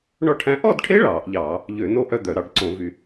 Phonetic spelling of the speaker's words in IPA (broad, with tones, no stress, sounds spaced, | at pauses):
ɳ ɔ˥˧ ʈʰ æ̃˦˥ ʔ ɔ˥˧ d ʈʰ e˦˥ ɭ ɑː˧˩˧ ʔ ʎ ɑː˧˩˧ | ʎ ø˧˩˧ n o˥˧ ʔ œ˥˧ d̪ œ˧˩˧ ɾ ɑ˧˩˧ ɖ ǀ õ˧˩˧ v y˧˩˧